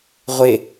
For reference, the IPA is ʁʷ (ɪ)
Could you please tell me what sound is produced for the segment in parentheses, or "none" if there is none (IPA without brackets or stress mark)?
ɪ